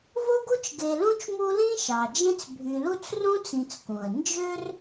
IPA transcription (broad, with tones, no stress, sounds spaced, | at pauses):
v o˦ ɡ u˦ t͡ʃ ɡ e˨ l ũ˥ t͡ʃ m u˦ l ĩ˥ ʃ ɑ˩ d͡ʒ ẽ˥ t͡s bʱ y˨ l u˥ t͡s r ũ˥ t͡s ĩ˨ t͡s k ũ˩ ə̯ n d͡ʒ ø˦ r